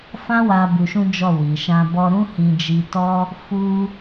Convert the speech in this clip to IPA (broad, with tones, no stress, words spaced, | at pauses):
fã˦wa˧ bu˧ʃũ˦d͡ʒɔ˦˨wi˨ ʃã˧bɔ˧ ɾũ˦hĩ˧d͡ʒi˧ tɔ˦ | fu˦